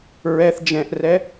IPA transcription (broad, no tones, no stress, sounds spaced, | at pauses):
ɹ ɛ θ d͡ʒ ɛ̃ ʔ r ɛ